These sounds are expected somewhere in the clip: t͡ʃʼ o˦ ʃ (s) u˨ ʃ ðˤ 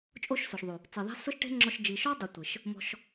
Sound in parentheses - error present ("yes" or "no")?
no